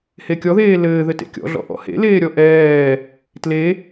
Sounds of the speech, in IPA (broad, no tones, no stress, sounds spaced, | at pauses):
h e kʲ ɔ ð eː l ɘː ð ɘ t ḛ kʲ ɔ̰ ɮ ɔ̰ ʔ ɔ̰ h ḛ l eː ɾʲ ɔ ʔ ɛː | t l e